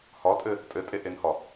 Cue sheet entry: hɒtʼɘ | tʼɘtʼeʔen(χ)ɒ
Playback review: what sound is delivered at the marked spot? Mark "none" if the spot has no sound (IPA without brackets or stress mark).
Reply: h